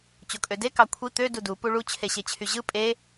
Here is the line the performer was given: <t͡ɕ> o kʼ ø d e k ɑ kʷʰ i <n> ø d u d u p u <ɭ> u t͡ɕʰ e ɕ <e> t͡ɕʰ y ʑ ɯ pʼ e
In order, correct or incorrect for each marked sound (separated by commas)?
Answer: correct, incorrect, correct, correct